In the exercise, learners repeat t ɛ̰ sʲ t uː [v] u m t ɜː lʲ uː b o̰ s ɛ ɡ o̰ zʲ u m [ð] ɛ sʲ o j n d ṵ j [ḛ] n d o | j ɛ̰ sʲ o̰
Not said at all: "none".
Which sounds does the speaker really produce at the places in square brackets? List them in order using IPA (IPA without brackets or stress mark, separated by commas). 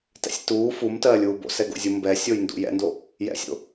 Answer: f, b, ɛ̰